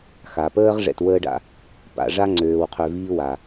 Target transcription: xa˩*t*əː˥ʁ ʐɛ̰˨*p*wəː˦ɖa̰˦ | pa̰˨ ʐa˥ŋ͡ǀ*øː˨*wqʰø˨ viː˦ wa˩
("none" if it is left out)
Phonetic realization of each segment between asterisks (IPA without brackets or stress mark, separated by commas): p, t, øː˨